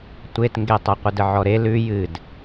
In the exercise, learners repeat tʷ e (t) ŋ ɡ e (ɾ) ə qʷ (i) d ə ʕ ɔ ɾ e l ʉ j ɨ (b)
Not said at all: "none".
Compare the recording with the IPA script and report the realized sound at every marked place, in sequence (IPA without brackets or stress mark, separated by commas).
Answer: t, tˤ, ɨ, d